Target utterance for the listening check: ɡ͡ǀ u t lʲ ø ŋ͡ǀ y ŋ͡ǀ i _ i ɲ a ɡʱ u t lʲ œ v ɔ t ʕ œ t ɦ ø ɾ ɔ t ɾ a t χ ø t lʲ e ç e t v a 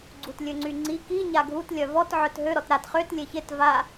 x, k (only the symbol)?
k